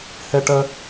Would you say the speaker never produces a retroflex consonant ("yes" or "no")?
no